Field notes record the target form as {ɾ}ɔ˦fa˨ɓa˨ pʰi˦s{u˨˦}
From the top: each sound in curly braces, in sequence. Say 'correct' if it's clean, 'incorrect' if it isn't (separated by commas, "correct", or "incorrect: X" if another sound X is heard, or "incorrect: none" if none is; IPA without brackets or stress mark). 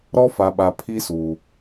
correct, incorrect: u˨